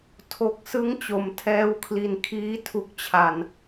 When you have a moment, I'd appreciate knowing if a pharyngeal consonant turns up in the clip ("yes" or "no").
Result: no